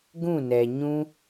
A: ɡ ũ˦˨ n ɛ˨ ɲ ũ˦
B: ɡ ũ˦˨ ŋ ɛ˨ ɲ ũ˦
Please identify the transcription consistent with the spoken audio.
A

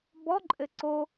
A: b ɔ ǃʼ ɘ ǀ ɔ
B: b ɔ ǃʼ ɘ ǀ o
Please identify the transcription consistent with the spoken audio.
B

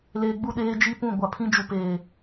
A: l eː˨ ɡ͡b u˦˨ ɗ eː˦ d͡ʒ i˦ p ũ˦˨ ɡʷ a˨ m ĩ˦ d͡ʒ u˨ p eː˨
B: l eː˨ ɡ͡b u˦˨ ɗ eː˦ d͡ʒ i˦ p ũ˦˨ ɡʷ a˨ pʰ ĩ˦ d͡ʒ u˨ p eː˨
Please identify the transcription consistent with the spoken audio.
B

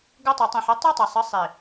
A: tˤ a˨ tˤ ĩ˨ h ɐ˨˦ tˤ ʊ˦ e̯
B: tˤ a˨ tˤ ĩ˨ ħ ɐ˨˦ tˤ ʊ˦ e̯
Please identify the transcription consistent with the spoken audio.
B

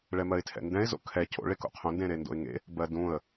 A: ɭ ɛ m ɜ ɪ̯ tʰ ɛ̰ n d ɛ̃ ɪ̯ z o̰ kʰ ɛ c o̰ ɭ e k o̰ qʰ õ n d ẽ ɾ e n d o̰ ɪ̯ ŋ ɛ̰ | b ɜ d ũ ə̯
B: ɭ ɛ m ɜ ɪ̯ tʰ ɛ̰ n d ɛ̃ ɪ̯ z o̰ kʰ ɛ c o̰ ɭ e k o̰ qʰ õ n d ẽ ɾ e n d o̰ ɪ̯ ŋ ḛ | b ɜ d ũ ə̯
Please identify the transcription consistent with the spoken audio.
B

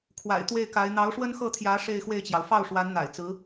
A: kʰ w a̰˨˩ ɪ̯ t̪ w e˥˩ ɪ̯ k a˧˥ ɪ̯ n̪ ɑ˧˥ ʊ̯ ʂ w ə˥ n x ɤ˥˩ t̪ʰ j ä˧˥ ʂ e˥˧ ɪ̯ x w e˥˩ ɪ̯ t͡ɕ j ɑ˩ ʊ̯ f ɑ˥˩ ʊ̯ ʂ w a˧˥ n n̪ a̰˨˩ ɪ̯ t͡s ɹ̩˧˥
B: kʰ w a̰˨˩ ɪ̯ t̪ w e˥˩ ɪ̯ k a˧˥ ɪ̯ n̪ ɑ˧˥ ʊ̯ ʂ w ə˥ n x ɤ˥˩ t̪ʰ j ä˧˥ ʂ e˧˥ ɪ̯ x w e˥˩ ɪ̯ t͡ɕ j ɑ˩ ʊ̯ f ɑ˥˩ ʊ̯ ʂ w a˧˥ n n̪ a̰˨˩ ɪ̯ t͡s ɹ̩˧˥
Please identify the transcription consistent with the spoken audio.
A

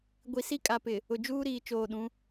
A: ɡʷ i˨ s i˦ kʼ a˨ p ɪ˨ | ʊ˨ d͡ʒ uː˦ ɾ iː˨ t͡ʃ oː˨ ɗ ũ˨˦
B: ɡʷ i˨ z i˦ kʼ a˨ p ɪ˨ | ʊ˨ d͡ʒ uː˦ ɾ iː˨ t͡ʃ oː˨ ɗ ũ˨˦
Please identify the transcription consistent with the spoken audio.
A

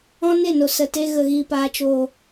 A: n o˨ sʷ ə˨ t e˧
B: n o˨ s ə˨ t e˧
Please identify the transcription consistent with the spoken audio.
B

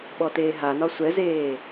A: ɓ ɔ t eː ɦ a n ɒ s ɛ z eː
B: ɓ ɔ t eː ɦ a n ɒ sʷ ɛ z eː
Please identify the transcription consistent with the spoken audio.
B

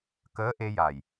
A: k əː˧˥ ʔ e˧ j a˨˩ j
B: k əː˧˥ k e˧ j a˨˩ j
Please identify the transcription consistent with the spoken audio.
A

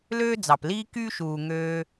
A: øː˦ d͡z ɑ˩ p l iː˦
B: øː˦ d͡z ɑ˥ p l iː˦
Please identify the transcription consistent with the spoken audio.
A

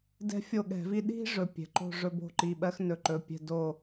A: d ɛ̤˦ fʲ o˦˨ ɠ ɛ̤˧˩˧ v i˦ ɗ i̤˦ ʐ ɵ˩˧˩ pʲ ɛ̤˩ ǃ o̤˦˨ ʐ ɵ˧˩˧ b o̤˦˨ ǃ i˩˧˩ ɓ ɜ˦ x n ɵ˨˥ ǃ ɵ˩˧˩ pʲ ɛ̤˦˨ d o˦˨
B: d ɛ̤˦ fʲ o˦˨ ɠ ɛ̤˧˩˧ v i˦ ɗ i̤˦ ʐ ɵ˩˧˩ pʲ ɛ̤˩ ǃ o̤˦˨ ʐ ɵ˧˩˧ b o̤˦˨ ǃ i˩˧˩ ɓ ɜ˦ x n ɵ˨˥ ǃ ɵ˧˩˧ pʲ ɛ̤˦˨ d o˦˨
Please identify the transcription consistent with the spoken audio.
A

